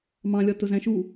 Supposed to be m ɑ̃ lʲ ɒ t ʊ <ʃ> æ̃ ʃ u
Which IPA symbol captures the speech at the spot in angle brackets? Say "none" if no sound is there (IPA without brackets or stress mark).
z